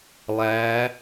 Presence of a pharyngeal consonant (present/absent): absent